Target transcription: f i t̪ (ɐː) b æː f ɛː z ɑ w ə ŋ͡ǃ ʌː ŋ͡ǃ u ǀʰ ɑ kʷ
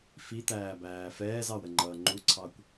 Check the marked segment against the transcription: incorrect: æː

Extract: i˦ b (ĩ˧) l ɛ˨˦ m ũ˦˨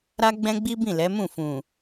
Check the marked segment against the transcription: incorrect: ĩ˦˨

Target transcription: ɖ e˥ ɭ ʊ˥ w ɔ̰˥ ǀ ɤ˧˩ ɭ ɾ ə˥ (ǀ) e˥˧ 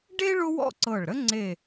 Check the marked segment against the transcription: incorrect: ŋ͡ǀ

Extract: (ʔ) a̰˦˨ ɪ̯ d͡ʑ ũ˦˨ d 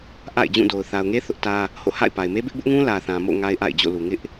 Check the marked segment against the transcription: correct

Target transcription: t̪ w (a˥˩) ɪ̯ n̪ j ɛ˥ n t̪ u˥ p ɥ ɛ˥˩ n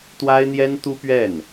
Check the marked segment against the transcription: incorrect: a˥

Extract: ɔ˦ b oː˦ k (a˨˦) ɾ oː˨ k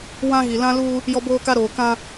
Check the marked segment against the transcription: incorrect: a˦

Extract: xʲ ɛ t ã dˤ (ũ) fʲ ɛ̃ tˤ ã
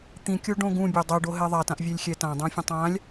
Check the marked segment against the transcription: correct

